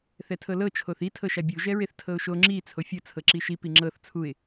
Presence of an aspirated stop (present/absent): present